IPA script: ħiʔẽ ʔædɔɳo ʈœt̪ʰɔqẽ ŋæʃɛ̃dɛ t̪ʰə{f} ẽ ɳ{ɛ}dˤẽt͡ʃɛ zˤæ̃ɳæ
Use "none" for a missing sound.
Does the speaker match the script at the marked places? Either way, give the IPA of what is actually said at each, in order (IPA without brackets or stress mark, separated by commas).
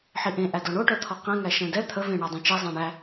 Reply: v, æ